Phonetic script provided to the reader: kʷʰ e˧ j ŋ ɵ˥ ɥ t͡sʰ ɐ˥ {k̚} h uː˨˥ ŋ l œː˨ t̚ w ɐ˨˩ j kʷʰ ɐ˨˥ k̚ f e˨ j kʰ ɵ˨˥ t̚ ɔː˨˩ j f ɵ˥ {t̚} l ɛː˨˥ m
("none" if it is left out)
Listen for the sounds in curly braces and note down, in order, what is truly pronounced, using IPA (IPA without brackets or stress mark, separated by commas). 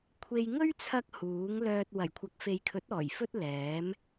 k̚, t̚